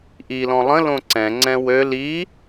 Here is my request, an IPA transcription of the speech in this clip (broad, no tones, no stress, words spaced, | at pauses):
ʔilɔ̃ lˠə̃lõ ǀɛ̃ŋ͡ǀɛ̃ wøl i